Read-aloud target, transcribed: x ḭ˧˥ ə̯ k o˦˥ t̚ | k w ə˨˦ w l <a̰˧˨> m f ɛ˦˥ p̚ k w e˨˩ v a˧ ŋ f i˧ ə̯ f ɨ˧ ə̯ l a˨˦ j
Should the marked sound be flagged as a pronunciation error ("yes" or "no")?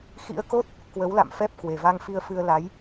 no